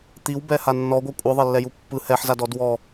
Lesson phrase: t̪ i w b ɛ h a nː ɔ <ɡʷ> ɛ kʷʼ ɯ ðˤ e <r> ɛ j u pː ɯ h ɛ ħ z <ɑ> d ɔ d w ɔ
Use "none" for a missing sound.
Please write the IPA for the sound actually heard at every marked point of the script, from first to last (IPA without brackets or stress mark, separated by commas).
ɡʷ, lː, a